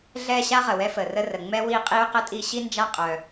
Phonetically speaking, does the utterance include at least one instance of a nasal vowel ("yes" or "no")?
no